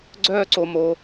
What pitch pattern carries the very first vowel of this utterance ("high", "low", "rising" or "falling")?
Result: high